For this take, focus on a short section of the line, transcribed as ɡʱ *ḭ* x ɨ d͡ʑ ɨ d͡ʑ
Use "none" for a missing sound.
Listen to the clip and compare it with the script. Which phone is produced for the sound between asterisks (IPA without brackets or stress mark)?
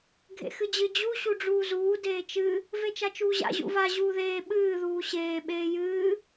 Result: ḛ